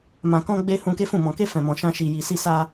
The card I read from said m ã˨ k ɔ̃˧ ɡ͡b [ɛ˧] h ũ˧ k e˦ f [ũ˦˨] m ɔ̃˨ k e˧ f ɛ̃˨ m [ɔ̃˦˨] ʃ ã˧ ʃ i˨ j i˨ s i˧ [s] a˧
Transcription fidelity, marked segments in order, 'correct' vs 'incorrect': incorrect: e˧, correct, incorrect: ɔ̃˨, correct

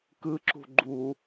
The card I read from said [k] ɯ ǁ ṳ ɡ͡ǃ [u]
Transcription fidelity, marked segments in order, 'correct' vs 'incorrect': correct, correct

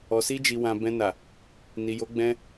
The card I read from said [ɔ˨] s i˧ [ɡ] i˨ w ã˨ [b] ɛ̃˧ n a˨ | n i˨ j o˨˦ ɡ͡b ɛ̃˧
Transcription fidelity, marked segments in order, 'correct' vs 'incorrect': correct, incorrect: d͡ʒ, correct

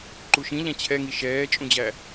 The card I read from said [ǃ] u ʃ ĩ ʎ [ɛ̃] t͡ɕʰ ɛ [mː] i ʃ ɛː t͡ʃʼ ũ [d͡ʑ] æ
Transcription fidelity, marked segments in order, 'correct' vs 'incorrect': correct, incorrect: æ̃, incorrect: ŋ, correct

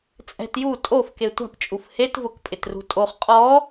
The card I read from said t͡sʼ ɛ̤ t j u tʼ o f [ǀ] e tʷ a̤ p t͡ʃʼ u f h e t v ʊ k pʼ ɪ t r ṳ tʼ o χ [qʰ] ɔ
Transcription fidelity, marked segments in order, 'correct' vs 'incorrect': incorrect: k, incorrect: qʼ

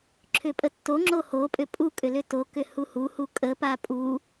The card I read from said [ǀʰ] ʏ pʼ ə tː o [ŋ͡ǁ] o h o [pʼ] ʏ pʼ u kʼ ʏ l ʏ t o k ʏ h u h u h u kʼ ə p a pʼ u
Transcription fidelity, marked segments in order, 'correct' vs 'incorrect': incorrect: ǁʰ, correct, correct

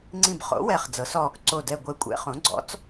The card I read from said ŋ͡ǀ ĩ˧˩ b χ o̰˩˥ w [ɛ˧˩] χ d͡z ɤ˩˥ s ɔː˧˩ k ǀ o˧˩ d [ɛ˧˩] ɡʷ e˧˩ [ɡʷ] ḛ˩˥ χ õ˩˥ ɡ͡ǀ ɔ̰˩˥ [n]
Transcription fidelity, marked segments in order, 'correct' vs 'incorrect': correct, correct, incorrect: kʷʼ, incorrect: t͡s

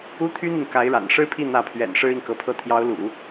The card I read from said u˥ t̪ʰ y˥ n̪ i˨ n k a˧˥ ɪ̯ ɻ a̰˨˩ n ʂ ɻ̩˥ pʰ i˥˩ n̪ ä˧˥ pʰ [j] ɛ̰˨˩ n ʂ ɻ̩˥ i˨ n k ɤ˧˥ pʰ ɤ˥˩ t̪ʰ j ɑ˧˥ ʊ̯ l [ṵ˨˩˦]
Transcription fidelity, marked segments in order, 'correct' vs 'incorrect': incorrect: ɥ, correct

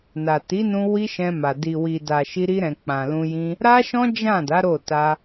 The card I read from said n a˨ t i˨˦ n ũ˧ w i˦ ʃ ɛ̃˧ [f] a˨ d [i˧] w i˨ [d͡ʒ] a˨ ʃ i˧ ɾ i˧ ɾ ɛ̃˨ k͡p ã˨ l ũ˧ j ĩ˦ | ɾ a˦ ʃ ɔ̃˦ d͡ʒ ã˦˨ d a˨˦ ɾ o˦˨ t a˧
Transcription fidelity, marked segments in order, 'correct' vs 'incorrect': incorrect: m, incorrect: i˨, incorrect: d

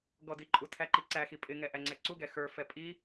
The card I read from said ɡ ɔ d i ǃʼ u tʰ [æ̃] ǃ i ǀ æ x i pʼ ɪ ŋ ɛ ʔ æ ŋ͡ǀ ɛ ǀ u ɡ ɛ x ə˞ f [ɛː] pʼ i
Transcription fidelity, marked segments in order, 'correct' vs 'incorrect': incorrect: æ, incorrect: ɛ

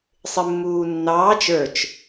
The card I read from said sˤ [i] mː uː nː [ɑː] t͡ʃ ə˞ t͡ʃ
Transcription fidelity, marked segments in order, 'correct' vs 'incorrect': incorrect: ɪ, correct

